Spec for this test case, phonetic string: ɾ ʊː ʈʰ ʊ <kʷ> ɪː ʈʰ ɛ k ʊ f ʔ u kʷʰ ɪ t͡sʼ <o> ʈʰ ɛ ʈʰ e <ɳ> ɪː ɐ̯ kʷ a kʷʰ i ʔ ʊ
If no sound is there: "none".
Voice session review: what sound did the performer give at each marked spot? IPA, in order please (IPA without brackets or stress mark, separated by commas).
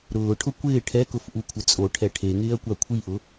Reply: kʷ, o, ŋ